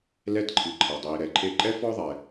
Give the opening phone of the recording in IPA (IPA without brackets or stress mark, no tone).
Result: l